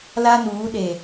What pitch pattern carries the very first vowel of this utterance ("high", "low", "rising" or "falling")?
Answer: high